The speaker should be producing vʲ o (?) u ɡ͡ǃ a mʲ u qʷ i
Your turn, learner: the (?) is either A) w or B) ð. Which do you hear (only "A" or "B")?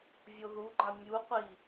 B